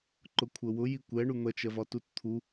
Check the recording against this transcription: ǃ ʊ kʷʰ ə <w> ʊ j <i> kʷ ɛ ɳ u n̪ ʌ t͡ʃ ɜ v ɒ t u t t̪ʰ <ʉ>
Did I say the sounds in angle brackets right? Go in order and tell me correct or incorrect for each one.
correct, correct, incorrect

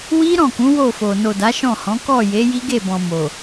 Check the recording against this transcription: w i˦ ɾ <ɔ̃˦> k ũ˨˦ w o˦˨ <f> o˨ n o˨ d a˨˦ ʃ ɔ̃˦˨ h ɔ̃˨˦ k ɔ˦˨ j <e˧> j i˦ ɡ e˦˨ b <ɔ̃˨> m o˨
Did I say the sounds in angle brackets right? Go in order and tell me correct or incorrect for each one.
incorrect, correct, incorrect, correct

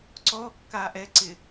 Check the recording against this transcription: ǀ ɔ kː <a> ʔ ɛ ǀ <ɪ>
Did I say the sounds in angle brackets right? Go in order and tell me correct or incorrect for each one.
correct, correct

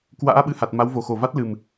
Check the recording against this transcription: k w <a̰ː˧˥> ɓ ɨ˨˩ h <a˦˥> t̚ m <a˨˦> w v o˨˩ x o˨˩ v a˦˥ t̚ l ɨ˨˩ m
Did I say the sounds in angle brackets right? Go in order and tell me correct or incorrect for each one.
correct, incorrect, correct

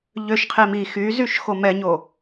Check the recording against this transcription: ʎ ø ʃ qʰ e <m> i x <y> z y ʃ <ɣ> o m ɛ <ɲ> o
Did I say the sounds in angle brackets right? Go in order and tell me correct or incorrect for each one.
correct, correct, incorrect, correct

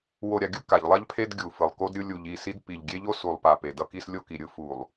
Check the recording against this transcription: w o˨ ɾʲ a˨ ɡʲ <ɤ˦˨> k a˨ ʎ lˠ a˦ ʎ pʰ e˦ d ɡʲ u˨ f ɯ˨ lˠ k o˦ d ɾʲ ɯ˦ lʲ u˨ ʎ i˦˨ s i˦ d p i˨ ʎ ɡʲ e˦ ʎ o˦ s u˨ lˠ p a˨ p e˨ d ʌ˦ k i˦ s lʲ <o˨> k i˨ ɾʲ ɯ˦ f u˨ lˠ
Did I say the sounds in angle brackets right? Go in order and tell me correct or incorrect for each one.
incorrect, incorrect

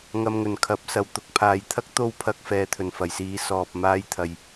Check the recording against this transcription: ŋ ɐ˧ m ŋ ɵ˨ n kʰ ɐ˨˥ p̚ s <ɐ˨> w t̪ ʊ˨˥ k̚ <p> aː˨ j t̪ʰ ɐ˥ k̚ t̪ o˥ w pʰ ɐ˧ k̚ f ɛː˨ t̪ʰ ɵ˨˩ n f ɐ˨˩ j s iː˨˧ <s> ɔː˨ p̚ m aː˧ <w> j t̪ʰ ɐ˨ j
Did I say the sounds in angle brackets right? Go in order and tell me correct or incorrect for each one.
correct, incorrect, correct, incorrect

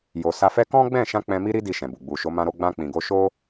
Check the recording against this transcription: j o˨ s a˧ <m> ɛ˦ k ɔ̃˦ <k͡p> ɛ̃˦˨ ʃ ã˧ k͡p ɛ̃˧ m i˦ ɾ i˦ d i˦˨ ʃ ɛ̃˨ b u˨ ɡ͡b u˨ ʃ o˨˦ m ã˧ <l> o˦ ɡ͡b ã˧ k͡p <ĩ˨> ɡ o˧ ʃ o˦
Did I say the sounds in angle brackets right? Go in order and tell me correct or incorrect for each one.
incorrect, incorrect, incorrect, correct

